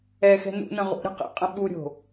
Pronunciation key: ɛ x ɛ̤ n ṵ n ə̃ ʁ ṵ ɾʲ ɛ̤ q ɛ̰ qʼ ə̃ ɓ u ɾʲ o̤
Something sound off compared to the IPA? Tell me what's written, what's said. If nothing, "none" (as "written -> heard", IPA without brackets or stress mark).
none